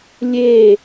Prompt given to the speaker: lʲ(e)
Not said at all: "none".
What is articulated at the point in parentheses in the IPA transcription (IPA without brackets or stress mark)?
e